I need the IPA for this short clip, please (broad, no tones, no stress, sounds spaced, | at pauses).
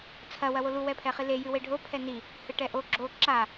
t͡sʰ ɐ w ɐ w o l u w ɛ pʰ ɛ χ i l e j ɨ w e ɖʱ o pʰ ɛ n i | h ɨ ʈ ɛ ʔ o ɡ͡ǁ o ǁ a